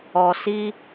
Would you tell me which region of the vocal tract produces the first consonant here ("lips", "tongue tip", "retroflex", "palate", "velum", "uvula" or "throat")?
tongue tip